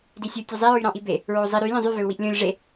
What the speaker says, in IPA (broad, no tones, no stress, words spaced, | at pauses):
disʲu tʲøzˤi ɹyɾɑ̃ʔibe | ɹozˤi ɾy lʲõzˤy vøu̯wiʔlʲõlʲ ʐe